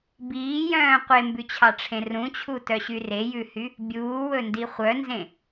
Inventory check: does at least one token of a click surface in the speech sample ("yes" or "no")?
no